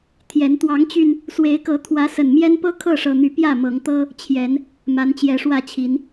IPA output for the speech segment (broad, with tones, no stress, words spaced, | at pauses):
t̪ʰjɛ˨˦n t̪wɑ˨˦ŋt͡ɕy˧n | swe˨˦ɪ̯kɤ˨˦ t̪ʰwä˨˦sə˨˩n mjɛ˦npɤ˦ kʰɤ˥˨ʂɤ˨˩n̪y˨˦ pjä˥˨mɤ˨˦ŋt̪ɤ˦ | t͡ɕʰjɛ˨˦n | ma˨˦nt͡ɕjɛ˨˦ʂwä˥˨t͡ɕʰi˨˦n